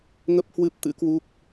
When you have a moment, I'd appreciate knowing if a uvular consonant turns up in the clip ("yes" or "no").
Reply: no